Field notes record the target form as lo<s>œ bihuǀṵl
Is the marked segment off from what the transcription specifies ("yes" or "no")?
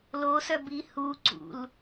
no